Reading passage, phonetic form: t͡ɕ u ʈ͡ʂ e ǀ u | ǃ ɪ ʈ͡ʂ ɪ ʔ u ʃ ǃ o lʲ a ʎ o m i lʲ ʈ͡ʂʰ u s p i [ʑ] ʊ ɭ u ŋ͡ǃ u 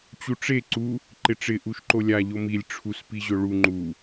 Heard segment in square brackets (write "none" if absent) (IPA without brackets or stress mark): ʑ